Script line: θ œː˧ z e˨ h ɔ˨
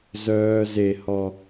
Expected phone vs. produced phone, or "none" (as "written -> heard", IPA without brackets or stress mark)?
θ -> z